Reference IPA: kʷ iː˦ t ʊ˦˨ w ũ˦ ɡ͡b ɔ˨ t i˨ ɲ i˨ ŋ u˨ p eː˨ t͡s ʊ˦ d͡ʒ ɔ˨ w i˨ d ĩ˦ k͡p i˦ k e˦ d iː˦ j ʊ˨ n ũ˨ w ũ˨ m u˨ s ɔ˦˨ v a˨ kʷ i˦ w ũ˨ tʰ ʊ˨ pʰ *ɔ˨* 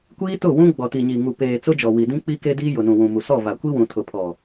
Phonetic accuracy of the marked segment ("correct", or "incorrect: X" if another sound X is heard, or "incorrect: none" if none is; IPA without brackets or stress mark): correct